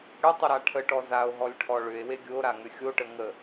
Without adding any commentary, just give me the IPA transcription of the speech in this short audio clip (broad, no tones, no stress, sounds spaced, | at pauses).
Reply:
ɽ ʏ tˤ ə ɾ a ʈʰ ə ʈ ɔ z a o̯ ɦ ɔ lʲ ʈʰ ɔ ɭ ʏ e̯ w e ɡʲ o ɾ a ŋ ʏ xʲ o ʈ ə ŋ ə